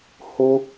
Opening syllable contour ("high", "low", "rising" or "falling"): high